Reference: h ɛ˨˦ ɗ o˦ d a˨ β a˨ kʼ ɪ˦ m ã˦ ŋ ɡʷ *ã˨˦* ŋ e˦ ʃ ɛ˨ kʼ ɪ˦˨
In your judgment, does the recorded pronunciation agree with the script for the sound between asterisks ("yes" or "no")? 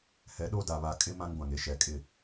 no